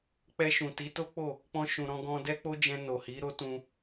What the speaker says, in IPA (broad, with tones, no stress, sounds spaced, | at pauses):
k͡p ɛ˧ ʃ ũ˨ t i˨˦ t o˦ k͡p o˦˨ | k͡p ɔ̃˧ ʃ ũ˨ ɾ ɔ̃˧ ɡ ɔ̃˧ d ɛ˦ k͡p o˦ d͡ʒ ɛ̃˧ n o˨ h i˨˦ ɾ o˦ t ũ˧